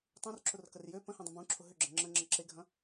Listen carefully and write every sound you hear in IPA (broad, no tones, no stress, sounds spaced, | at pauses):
tˤ ũ r ǁ ʊ r k ə r j ø p ə̃ h ẽ dˤ ə̃ b ũ ǁʰ ʊ ɦ ʏ ɡ͡ǁ ə̃ ŋ͡ǁ ə̃ ŋ͡ǁ ə ǁ e ɡʱ ɐ̃